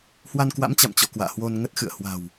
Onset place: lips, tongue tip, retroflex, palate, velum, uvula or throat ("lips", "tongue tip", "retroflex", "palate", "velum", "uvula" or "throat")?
throat